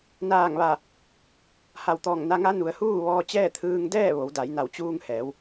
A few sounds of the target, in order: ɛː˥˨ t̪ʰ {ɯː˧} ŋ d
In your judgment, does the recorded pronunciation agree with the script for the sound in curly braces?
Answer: yes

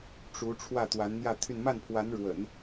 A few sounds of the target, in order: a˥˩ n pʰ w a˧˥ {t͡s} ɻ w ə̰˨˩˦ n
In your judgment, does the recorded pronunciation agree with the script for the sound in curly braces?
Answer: no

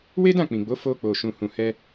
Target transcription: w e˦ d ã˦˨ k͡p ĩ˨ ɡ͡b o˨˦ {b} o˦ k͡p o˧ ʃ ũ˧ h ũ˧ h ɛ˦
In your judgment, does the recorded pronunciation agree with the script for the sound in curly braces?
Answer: no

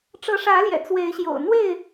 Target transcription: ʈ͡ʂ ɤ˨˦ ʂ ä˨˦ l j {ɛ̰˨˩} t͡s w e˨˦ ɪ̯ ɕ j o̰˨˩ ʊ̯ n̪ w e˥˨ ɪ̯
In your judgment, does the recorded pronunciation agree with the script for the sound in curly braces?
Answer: yes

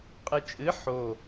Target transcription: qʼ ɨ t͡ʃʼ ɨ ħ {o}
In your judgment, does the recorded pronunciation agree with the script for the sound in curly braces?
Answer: yes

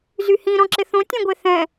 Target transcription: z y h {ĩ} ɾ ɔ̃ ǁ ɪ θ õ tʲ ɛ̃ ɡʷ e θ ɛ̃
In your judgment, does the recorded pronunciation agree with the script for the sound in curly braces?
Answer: yes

